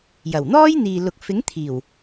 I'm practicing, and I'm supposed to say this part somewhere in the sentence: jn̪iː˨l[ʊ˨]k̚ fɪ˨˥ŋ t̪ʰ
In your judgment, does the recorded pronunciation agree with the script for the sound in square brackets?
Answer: yes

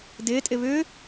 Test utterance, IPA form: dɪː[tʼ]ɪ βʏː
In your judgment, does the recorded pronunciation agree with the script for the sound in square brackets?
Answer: yes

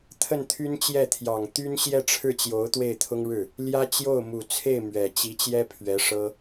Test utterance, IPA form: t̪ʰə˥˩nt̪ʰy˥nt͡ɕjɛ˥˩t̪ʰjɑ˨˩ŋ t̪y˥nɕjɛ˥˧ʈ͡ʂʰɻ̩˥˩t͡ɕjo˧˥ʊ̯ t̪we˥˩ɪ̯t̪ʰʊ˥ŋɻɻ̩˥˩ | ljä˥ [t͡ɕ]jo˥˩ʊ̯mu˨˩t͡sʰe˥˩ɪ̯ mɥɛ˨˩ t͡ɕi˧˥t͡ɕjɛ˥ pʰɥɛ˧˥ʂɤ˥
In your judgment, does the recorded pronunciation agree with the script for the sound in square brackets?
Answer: yes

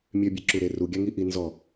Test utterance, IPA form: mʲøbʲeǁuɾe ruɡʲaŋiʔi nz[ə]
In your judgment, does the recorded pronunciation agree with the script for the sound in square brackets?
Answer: no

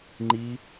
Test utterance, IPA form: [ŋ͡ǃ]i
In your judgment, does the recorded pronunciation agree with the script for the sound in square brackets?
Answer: yes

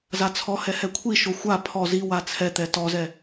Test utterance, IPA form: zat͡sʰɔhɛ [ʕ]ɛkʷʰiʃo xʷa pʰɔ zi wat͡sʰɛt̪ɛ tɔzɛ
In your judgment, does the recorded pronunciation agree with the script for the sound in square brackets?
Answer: no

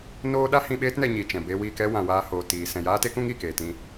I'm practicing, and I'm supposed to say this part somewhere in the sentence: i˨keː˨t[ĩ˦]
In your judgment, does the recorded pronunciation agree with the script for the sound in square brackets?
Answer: yes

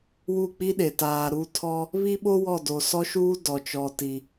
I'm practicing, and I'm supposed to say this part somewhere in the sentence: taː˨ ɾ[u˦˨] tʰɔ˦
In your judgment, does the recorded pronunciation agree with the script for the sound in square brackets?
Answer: yes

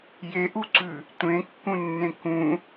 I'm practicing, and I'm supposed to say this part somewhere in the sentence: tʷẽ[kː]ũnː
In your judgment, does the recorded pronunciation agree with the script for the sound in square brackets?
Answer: yes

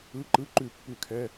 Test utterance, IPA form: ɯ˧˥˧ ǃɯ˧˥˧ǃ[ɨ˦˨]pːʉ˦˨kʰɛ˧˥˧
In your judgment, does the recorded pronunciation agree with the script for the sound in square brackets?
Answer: no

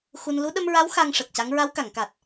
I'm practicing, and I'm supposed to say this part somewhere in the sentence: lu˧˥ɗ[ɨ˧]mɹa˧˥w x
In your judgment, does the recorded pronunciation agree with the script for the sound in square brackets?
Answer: no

